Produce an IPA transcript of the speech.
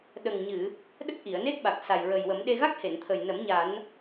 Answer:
ɗ ə˨˩ ŋ ɲ ɨ˨˩˨ | ɗ ə˦˥ k̚ ʔ i˨˩˨ ə̯ n e˦˥ k̚ ɓ a˨˩ k̚ s a˨˩ j ɹ ə˨˩ j w ə˨˩˦ m ɗ e˧ ɣ a˦˥ k̚ h e˨˩˨ n t̪ʰ ə˨˩ j n ə˨˩˦ m ɲ a˨˩˦ n

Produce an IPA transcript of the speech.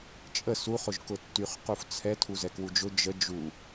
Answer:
t͡ʃʼ ə s u χ ʊ ʒ k ʊ tː y χ q u f t͡sʰ ɛ tʰ u z ɛ k w u d͡ʒ ʊ d͡ʒ ə d͡ʒ u

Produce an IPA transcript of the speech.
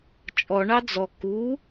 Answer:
t͡ʃʼ ɔ ɳ ɑ d͡z ɔ k u

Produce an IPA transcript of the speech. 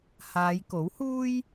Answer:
h aː˨˧ j k o˨˥ w h uː˥ j

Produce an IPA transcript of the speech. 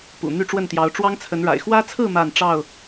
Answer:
p ṵ˨˩ n̪ y˥˨ ʈ͡ʂ w ə˥˨ n t̪ j ɑ˨˦ ʊ̯ ʈ͡ʂ w ɑ˦ ŋ t͡sʰ ə˨˦ n ɻ a̰˨˩ ɪ̯ x w ä˦ t͡sʰ ɹ̩˥˨ m a˥˨ n ʈ͡ʂ ɑ˥˨ ʊ̯

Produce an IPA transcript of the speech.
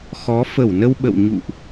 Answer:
x ɔ˨˦ f ə˧˩ w n ə˧ w ɓ ə̰˧˨ w ɲ ṵ˧˨ ʔ

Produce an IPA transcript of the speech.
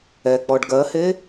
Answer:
ɛ k͡p ɔ ɖ ɡ ɜ h e

